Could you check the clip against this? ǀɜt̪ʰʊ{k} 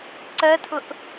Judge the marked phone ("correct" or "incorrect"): incorrect